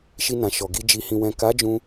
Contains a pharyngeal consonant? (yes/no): no